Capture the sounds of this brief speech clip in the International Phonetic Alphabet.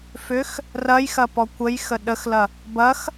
f ʏ x | r ɐ j x ɐ p ɔ kʷ ə j x ə ɗ ə x l ɐ | b ɐ x

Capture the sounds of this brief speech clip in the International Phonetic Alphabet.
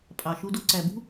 pʼ ɑ˨ ʃ u˧ d o˧ ǀ æ˨ b ṳ˦

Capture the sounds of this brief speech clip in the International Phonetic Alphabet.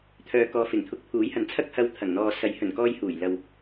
t̪ʰ œː˨ k ɔː˨ f ɪ˨˩ ŋ t̪ʰ ʊ˨˥ k̚ pʰ uː˨˥ j h ɐ˨˥ n t͡sʰ ɐ˥ k̚ h ɐ˧ w t̪ʰ ɐ˨˩ ŋ n̪ ɔː˨ s ɐ˨˥ j h ɵ˨˩ n k ɔː˧ j h uː˨˩ j l ɐ˨ w

